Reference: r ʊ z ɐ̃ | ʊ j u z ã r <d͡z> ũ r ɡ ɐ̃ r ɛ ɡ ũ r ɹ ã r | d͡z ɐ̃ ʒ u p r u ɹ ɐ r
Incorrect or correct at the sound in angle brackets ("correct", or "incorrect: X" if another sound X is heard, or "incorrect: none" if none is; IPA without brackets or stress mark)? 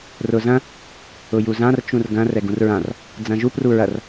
incorrect: t͡ʃ